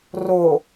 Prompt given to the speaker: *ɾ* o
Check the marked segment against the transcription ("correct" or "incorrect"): incorrect